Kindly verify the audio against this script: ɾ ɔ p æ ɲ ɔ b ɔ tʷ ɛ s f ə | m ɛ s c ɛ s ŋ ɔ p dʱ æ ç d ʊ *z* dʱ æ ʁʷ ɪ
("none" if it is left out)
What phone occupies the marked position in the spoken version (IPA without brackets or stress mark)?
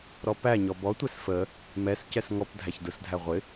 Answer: s